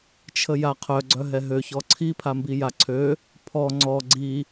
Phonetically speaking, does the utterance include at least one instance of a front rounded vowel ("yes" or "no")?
yes